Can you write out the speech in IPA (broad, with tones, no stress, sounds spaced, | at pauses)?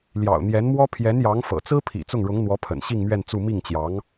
l j ɑ̰˨˩ ʊ̯ n̪ j ɛ˧˥ n m w ɔ˥ pʰ j ɛ˧˥ n j ɑ˧˥ ŋ f ɤ̰˨˩ t͡s ɹ̩˥ pʰ ḭ˨˩ t͡s ʊ˥˩ ŋ ɻ ʊ˧˥ ŋ n̪ w ɔ˧˥ pʰ ə̰˨˩ n ɕ i˥˧ ŋ m ɥ ɛ˥˧ n t͡s u˥˧ m i˥˩ ŋ t͡ɕ j ɑ˧˥ ŋ